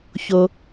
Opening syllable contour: low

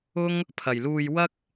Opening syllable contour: high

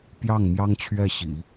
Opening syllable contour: falling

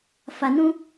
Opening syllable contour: low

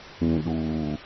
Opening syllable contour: low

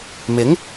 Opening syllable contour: rising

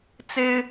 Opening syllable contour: high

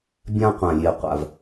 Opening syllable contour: high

